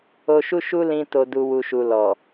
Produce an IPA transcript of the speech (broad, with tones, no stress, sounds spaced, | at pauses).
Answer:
o˧ ʃ u˦ ʃ u˦ l ĩ˧ t o˨ d u˨ w u˨ ʃ u˨ l ɔ˨